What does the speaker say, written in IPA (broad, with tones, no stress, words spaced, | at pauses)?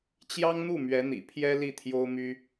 t͡ɕjɑ˥ŋn̪u˥˩ mɥɛ˧˥n̪ḭ˨˩pʰjɛ˥ li˥˩t̪ʰjo˥ʊ̯my˥